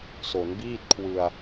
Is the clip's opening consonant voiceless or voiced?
voiceless